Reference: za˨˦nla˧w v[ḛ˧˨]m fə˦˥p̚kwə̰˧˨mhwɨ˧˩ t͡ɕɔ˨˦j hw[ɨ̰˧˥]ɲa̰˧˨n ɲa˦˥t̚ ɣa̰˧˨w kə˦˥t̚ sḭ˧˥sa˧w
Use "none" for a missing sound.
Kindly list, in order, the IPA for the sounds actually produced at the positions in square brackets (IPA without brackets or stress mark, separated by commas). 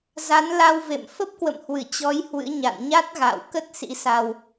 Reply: ḛ˧˨, ɨ̰˧˥